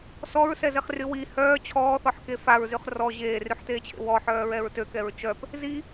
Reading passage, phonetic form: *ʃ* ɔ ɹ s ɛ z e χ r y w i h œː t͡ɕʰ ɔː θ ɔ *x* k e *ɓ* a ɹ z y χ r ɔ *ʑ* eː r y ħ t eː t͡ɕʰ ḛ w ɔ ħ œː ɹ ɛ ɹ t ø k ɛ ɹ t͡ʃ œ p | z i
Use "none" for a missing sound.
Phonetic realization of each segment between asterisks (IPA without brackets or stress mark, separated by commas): s, ħ, f, ʑ